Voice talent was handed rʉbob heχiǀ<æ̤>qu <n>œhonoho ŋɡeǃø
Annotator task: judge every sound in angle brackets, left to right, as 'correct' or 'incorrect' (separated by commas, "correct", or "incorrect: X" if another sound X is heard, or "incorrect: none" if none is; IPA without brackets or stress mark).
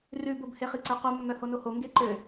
incorrect: æ, incorrect: mː